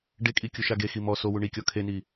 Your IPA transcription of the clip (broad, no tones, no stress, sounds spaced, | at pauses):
ɖ e kʼ i kʲ u ʃ a ɡ e x i m ɔ s o w u ɳ i kʲ ɔ kʰ e n i